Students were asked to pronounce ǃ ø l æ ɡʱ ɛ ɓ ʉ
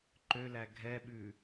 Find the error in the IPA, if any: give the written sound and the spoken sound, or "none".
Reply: none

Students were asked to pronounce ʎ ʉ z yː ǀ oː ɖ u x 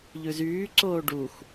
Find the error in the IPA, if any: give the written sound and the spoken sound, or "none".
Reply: none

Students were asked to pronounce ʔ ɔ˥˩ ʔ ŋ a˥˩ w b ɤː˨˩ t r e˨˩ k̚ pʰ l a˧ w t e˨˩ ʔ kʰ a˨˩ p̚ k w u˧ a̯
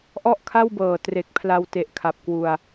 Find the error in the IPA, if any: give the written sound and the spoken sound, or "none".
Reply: ŋ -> kʰ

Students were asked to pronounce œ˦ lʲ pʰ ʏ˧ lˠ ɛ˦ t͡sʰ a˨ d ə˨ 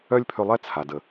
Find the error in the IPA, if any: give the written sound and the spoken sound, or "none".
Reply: none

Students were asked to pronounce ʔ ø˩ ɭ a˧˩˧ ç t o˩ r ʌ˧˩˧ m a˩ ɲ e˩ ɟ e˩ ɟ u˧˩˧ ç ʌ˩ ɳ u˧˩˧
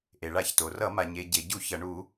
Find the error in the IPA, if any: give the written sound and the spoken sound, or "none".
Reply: ø˩ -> e˩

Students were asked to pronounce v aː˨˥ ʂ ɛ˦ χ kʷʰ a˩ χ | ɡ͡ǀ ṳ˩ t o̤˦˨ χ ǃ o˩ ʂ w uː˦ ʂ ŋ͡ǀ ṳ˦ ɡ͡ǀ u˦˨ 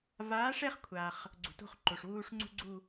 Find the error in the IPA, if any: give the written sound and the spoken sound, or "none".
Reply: none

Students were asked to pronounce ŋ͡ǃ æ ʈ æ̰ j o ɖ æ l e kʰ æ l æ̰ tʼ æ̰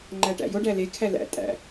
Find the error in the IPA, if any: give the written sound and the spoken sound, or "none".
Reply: none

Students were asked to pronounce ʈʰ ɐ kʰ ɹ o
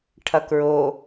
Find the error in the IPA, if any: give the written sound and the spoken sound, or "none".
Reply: kʰ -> k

